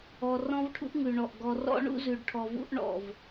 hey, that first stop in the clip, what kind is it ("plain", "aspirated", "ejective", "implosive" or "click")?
aspirated